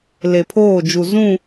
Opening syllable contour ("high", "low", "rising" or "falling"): low